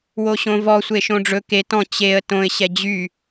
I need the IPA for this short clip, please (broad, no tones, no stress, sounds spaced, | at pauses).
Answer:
w o ɕ õ v ɔ sʷ e ʃ õ ɖ͡ʐ ɵ k e t ɔ̃ t͡ɕ e ə̯ t õ ɪ̯ ɕ ɛ d͡ʑ y